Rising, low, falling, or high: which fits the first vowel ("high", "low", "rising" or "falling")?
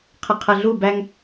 low